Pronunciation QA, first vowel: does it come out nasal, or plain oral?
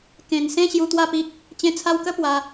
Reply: nasal